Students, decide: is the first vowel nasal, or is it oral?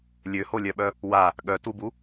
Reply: oral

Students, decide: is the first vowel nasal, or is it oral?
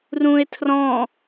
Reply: nasal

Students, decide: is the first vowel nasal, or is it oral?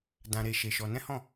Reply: nasal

